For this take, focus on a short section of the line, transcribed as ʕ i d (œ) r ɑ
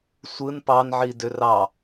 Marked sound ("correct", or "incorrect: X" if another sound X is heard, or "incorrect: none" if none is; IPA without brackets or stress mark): incorrect: ø